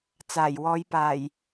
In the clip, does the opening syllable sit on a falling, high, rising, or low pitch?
low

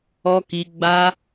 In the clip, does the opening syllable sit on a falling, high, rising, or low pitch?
high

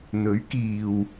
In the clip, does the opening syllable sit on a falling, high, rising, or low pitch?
rising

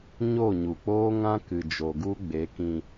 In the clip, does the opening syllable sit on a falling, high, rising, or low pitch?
falling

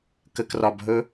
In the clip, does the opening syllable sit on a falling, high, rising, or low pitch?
low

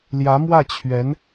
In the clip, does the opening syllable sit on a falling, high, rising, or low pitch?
rising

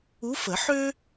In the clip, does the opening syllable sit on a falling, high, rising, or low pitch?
rising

